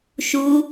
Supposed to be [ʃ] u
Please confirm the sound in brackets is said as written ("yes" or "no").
yes